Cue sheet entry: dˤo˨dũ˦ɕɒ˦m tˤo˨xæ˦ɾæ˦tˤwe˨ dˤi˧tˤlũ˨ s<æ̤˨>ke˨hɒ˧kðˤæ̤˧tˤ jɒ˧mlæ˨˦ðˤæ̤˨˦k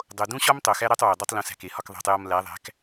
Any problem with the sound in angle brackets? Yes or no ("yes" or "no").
no